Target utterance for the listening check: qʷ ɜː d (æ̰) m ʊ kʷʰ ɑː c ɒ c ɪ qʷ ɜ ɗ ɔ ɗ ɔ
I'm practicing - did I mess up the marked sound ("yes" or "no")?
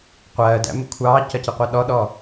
no